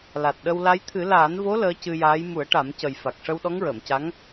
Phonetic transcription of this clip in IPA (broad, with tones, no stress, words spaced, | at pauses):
la˨˩t̚ɗə˧wla˧˥j t̪ʰɨ˨˩˦laː˨˩˦nvo˧˥ ləː˧˥cɨ˧jaː˧˥j mu˨˩˦ə̯ʈa˨˩˦mcə˨˩j fa˨˩k̚ʂə˧w ɗɔ˧˥ŋɹəː˨˩˨mca˧˥ŋ